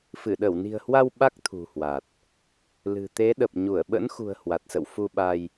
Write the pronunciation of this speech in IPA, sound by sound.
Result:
f ɨ˧˩ ɗ ə˧˩ w n i̤˨˩ ə̯ h w a˧ w ɓ a˦˥ k̚ t̪ʰ ṳ˨˩ h w a˨˩ t̚ | l ɨ̤˨˩ t̪ e˨˦ ɗ ə˨˩ p̚ ɲ u˧˩ ə̯ ɓ ə̰˧˥ n x ṳ˨˩ ə̯ h w a˨˩ t̚ s ə̰˧˨ w f u˧ ɓ a˧ j

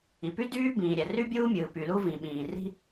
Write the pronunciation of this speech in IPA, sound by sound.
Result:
i˩ p y˥ d yː˥ b ĩː˩ ɾʲ æ˩ r y˥ bʲ uː˥ mʲ ɯː˩ p y˩ l u˥ v ĩ˩ ɓ ĩː˩ r i̤˥

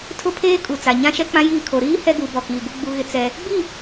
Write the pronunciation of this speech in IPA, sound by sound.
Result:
tʰ ʊ˦ pʰ eː˦ kʼ u˨ t͡s a˨ ɲ ã˦ ʃ ɛ˦ k͡p ã˦ j iː˦˨ kʰ o˨ ɾ iː˦ h ɛ˦ ɡ u˨˦ b ɔ˨ k iː˨ ɡ u˦ ɡ͡b u˦ ɣ ɪ˦ t͡s ɛ˦ | ɡ͡b i˦˨

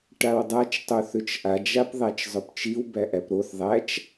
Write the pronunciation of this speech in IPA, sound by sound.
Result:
ʈ a w dˤ a t͡ʃ tˤ o θ ʏ t͡ʃ ʔ a d͡ʒ a p ðˤ æ t͡ʃ zˤ ɵ p t͡ʃ i w b æ ʔ æ p ɾ o θ ðˤ æ t͡ʃ

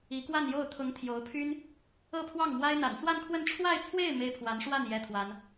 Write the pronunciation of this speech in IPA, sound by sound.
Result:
i˧˥ k w a˥˧ n j o˥˩ ʊ̯ t̪ʰ ʊ˧˥ ŋ t̪ʰ j o˧˥ ʊ̯ pʰ y˥ n | ɤ˥˧ pʰ w ɑ˥˩ ŋ m w a˥ ɪ̯ n̪ a̰˨˩ n t͡s w a˥˧ n kʰ w ə˥˧ n ʈ͡ʂʰ w a˥˧ ɪ̯ t͡sʰ w e˥˩ ɪ̯ m e˥ ɪ̯ pʰ w a˧˥ n ʂ w a˥˩ n j ɛ˥ t̪ʰ w a˥ n

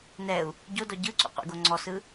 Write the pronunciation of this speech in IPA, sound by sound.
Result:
n ɛ u̯ | ɟ o d ɔ ɟ ɯ ǀ ṵ qʷ ḛ ɡ o ŋ͡ǀ ɔ s ɯ

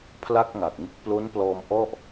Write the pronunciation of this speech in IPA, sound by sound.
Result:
pʰ l a˥˩ k̚ ŋ a˨˩ k̚ ŋ ɯ˦˥ k̚ p l o˦˥ n p l ɔː˧ m ʔ ɔ˥˩ ʔ

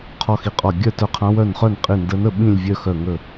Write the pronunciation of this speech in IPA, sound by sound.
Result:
qʰ ɔ˥˨ x i˧˩ qʼ ɔ˧˩ ɡʲ œ˥˨ t œ˧˥ qʰ ã˧˥ w œ˧˩ n χ œ˥˨ n qʼ i˧˩ n d ə˧˥ n ə˥˨ ɓ ĩ˥˨ lʲ vʲ œ˥˨ x œ˧˩ ŋ ə˧˩

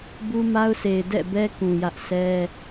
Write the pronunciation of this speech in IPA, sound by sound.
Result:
b u˦ m a˦ ʊ̯ sʰ e˨ ɪ̯ d ɛ̰˦˨ b ɛ˦ k ũ˨ j ä˦ ʔ sʰ ɛ˦

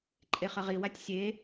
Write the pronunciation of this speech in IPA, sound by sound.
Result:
ǃʼ e χ ə ʁ i w a tʲ sʲ e

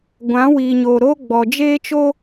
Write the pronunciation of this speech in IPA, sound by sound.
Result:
ɡʷ ã˨˦ w iː˨ ɲ oː˨ ɾ o˦ ɡ͡b ɔ˨ d͡ʒ eː˦ t͡ʃ o˦

